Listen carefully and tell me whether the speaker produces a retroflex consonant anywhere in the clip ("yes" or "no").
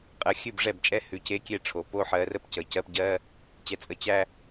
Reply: yes